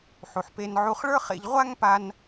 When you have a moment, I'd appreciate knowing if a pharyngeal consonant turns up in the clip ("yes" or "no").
yes